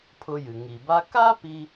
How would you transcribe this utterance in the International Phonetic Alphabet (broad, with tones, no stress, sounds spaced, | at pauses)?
pʰ ʊ˧ j ɨ˩ ŋ i˩ b a˥ k a˥ p i˧